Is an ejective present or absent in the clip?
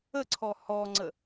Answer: absent